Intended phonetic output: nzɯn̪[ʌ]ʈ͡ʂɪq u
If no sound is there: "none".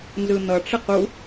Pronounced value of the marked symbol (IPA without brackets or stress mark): ʌ